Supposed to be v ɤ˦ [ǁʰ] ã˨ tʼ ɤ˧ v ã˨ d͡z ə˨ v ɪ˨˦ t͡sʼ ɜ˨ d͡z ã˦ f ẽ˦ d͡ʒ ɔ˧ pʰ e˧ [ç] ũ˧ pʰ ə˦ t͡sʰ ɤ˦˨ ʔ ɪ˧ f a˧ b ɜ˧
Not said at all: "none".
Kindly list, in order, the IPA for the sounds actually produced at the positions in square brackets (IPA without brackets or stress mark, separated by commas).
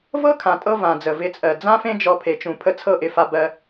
kʰ, t͡ʃ